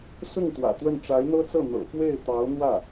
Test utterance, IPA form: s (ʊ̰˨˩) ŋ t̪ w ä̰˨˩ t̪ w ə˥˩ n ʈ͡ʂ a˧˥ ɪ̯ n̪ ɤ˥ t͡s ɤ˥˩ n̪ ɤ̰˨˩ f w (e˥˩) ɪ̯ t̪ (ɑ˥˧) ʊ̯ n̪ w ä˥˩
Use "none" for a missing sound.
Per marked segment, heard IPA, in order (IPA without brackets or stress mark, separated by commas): ʊ˥˩, e˥˩, ɑ˧˥